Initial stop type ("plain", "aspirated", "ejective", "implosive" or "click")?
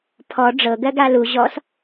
aspirated